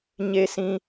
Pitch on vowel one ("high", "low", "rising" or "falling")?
low